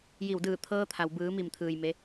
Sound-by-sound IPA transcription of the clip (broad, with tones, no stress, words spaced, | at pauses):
ji˧˩wdɯː˧˩ t̪ʰɤː˧t̪ʰa˩w bɯː˩˧mi˧˩mt̪ʰɯː˩j me˧˥